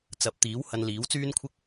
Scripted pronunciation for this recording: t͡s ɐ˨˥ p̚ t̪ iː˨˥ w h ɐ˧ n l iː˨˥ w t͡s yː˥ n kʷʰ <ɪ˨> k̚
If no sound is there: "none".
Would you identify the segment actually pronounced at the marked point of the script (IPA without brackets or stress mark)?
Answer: ɪ˥